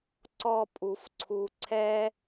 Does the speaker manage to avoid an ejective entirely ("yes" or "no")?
no